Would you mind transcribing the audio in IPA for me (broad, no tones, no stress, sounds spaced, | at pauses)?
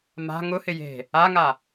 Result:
m a̤ ŋ ʊ h ɪ j e̤ | a ŋ a